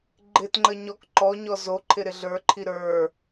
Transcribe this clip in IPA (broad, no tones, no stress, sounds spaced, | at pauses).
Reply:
ɡ͡ǃ ɪ t ŋ͡ǃ ə ɲ ɔ k ǃ ɔ ɲ ɔ z o ǃʰ ɪ ɾ ɪ ɮ ə˞ ǃʰ i ɾ ə˞